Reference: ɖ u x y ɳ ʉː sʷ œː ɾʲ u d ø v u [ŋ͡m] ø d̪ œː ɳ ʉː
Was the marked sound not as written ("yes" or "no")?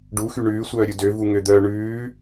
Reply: yes